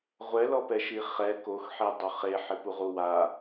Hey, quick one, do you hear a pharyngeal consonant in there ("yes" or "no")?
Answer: yes